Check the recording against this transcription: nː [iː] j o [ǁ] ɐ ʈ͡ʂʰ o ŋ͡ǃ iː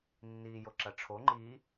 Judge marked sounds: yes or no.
yes, yes

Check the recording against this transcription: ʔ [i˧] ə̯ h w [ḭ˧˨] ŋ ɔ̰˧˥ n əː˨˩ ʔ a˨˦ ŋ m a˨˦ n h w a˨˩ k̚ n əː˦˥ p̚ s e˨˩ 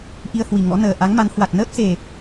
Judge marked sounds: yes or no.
yes, no

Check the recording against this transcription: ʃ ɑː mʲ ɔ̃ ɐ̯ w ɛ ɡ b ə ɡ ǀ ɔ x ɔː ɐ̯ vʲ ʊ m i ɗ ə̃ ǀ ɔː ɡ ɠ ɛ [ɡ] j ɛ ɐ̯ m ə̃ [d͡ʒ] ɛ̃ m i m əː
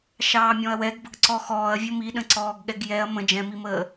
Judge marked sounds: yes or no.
yes, yes

